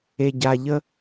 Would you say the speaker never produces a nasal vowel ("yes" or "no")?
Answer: yes